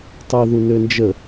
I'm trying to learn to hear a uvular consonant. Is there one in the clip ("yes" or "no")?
no